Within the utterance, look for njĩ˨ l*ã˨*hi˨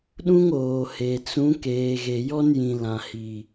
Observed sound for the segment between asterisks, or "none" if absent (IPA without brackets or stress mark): ã˨